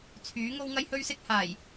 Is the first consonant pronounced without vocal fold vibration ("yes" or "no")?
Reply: yes